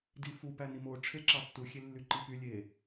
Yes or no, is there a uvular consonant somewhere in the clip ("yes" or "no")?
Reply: no